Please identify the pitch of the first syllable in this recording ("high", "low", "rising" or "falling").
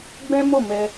high